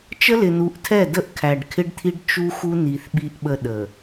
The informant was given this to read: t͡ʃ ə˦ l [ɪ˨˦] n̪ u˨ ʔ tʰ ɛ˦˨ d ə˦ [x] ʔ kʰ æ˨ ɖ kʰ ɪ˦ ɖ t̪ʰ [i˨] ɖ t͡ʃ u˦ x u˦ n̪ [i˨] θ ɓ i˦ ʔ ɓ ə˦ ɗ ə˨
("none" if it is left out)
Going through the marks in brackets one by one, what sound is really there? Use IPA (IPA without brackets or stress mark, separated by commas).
ɪ˨, none, i˦, i˨